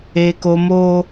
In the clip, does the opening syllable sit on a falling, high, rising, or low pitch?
high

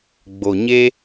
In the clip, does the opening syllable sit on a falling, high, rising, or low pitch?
low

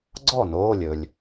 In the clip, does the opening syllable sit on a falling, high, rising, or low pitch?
falling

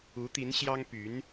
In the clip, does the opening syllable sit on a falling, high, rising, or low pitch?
rising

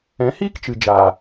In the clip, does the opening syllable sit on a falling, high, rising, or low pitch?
rising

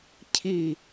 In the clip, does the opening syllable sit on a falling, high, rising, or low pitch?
falling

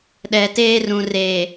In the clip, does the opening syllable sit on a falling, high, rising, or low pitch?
low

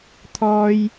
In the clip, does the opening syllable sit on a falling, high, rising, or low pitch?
high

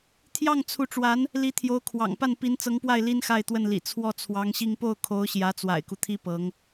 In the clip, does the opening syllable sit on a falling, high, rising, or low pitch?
falling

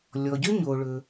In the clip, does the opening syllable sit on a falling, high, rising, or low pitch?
low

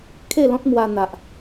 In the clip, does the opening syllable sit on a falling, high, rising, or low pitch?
falling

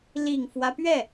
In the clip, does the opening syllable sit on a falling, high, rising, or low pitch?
low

